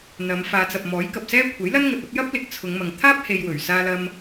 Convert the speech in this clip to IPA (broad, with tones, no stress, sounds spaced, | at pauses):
n̪ ɐ˨˧ m f aː˨˧ t͡s ɐ˨ p̚ m ɔː˨˥ j k ɐ˨ p̚ s ɛː˥ kʷʰ ɐ˨˥ j l ɐ˥ n ŋ ɐ˧ t̚ ɐ˥ p̚ j ɐ˥ p̚ l ɪ˨˥ k̚ t͡sʰ ʊ˨˧ ŋ m ɐ˨ ŋ t̪ʰ aː˥ p̚ h e˧ j w ɵ˨˩ ɥ s aː˥ l ɐ˥ m